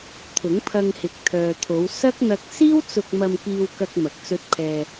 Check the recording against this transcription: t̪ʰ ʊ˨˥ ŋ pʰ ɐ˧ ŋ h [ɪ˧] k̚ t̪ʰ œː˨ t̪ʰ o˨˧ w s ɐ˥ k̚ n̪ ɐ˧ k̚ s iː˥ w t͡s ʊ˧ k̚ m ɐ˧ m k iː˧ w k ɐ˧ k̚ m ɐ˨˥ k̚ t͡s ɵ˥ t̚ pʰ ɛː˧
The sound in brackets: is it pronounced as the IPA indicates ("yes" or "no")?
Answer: no